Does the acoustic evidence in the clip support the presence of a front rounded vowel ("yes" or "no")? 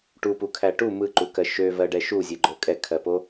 yes